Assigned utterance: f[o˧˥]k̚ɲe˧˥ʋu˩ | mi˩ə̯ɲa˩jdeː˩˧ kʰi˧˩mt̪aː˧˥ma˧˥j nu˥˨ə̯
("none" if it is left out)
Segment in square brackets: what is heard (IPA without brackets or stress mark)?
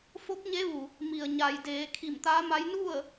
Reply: o˧˥